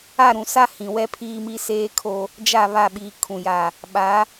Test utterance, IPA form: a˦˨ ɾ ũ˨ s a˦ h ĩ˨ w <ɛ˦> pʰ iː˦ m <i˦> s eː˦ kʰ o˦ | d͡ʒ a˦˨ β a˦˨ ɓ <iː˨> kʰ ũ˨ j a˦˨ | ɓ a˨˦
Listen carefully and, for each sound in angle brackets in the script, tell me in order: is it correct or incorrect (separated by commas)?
correct, correct, correct